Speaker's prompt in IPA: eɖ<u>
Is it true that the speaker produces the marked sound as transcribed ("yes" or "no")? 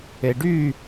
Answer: no